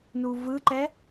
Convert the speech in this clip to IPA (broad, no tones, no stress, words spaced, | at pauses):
nuvɯǃɛ